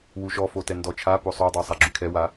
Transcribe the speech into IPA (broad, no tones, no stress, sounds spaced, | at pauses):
w u ʃ ɔ f o t ɛ n d ɔ t͡ʃʰ a p o sˤ o dˤ o sˤ a ɡ͡ǁ y kʰ ɛ w a